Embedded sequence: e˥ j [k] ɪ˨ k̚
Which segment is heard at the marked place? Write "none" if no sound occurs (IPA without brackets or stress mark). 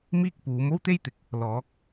t̪